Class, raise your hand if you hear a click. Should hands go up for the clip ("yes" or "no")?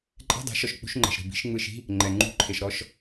yes